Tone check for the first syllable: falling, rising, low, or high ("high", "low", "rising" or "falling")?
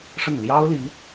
falling